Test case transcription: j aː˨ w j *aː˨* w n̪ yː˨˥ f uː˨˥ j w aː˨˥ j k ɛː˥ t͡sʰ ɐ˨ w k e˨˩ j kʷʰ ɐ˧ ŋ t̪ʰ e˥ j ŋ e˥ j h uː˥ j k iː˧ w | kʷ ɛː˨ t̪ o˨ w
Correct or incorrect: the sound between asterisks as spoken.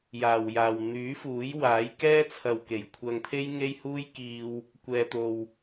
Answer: correct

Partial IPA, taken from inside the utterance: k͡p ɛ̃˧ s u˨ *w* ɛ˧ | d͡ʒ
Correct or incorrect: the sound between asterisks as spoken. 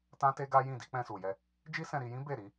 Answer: incorrect: j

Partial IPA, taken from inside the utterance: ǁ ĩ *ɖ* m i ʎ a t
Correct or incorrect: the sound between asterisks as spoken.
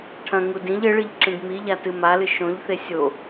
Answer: correct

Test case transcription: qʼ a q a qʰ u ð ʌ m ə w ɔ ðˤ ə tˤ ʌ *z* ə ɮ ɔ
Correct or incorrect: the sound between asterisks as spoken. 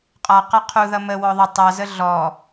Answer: correct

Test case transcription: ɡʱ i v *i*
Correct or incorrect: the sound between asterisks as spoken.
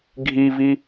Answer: correct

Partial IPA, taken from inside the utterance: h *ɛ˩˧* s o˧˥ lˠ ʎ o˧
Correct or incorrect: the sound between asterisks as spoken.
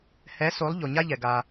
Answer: incorrect: ɛ˧˥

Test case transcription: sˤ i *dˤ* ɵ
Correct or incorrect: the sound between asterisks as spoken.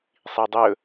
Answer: correct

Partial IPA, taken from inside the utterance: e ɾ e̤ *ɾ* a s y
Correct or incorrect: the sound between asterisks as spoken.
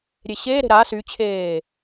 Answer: correct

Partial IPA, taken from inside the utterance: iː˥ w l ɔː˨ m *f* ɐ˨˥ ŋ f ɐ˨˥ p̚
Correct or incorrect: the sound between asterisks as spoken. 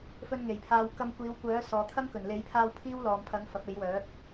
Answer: incorrect: pʰ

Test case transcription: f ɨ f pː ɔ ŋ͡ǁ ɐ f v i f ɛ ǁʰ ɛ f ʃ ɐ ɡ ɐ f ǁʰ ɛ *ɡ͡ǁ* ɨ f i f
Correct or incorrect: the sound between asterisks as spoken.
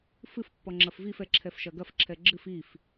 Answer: correct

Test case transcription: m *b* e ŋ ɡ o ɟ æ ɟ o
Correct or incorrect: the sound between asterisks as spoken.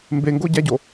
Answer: correct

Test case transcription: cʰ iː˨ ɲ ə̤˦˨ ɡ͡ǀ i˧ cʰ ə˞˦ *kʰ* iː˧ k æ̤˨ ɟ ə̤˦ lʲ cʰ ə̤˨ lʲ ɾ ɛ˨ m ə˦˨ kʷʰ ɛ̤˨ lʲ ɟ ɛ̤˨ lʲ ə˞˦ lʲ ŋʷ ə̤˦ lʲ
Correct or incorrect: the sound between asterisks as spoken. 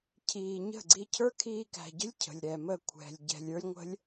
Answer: correct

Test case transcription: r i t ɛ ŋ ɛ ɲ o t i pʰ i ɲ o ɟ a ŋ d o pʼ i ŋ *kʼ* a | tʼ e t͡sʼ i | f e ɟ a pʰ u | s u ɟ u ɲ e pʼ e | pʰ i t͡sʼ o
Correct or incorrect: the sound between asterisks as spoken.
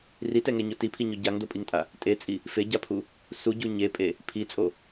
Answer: incorrect: tʼ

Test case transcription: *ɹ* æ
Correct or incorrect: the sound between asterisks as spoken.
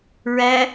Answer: correct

